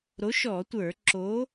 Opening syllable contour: rising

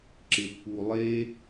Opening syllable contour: low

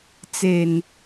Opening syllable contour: low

